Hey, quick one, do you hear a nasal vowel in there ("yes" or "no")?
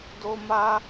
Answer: no